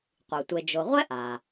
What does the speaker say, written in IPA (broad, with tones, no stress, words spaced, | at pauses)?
qʷɨ˩tʷe˨d͡ʒo˨ʁʷɛ˥ ʔa˩